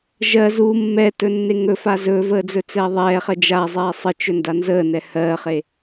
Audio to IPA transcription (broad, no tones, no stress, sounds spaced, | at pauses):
ʒ ɜ z u mː ɛ t ɵ nː e ŋ ɵ f a z ɵ v əː d͡z ɵ t͡s ɛː ðˤ ɛː χ ɜ d͡ʒ a zˤ ɛː sˤ ə t͡ʃ ɵ n d a n z əː n ɛ h ɜː χ e